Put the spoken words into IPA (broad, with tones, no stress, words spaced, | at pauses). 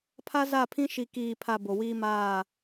pʰa˦za˦˨pʰĩ˦ ʃi˨kiː˨pʰa˨ bo˨wiː˦maː˦˨